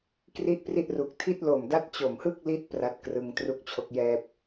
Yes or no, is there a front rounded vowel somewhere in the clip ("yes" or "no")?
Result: no